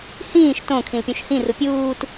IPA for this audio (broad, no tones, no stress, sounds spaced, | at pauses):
h ĩː ʃ t õ kʰ ĩ l pʲ ũ ʃ h ĩ r u pʲ uː t